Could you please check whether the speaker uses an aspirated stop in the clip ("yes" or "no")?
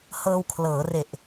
yes